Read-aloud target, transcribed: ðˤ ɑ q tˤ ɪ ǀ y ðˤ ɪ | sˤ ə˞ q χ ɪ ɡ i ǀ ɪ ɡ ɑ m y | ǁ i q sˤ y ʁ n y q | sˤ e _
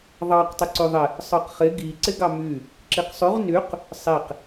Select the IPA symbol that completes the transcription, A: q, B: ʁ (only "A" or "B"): A